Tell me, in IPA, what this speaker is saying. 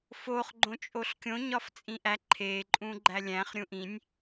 f o χ ɡ͡ǃ õ t͡ʃʼ o ɬ kʲ õ ɲ ɒ f t͡sʼ ĩ ʔ æ ǃʰ e ǃʼ ũ ɡ͡ǃ æ lʲ æ̃ χ ɾʲ ũ ʔ ĩ nʲ

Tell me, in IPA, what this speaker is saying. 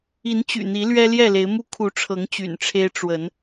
i˨˦ n t͡ɕ y̰˨˩ n̪ i˨˦ l ɥ ɛ˦ l j ɛ˥˨ l e˨˦ ɪ̯ m u˦ kʰ u˨˦ ʈ͡ʂʰ ɤ˨˦ ŋ t͡ɕ y̰˨˩ n ʈ͡ʂʰ e˦ ɪ̯ ʈ͡ʂ w ə˨˦ n

